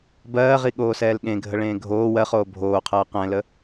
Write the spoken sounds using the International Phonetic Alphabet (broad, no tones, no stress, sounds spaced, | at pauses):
b ɜː ʁ i ɠ oː s ɛː l ɠ ẽ ɡʱ ə ɭ ẽː ɡʱ oː w ɜ χ oː bʱ oː qʰ ɜː q ɛ̃ l ə